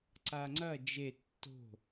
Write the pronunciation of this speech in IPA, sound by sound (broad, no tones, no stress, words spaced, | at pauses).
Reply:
ǀaŋ͡ǀɐ d͡ʒe tːo̤